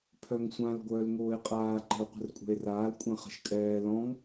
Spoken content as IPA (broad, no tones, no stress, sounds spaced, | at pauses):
pʰ œ ŋ sʷ ã l ɡʷ œː l ŋ oː e̯ qʼ aː ǃ ə̤ o̯ qʷ ə̤ r kʷʼ ɛ̤ e̯ r aː l kʷʼ ɛ̃ χ ə̤ ʃ kʼ ɛː l ɔ̃ ŋ